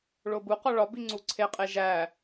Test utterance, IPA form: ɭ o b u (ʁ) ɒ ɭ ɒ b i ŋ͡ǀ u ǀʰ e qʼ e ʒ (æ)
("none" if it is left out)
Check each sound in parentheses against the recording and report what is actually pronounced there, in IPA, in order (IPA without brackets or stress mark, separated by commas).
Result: q, æ